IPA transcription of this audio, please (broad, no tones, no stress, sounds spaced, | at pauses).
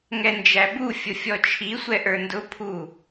ŋ ɛ n d͡ʒ æ b u fʲ ʊ fʲ ɔ t͡ʃʰ i sʷ ɛ ʔ ə˞ n d ʊ pʰ u